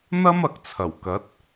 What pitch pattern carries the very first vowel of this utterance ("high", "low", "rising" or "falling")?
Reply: high